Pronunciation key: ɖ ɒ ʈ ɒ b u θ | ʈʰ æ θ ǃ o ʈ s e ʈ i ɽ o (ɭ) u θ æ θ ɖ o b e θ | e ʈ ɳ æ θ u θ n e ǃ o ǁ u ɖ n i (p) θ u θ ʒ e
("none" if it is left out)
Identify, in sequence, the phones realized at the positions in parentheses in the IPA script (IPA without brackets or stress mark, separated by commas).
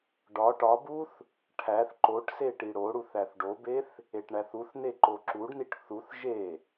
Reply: ɽ, ʈ